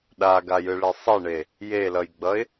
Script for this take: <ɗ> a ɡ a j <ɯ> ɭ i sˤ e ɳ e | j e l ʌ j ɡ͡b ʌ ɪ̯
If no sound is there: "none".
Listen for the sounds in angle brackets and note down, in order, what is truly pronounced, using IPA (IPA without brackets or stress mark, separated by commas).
ɗ, ɯ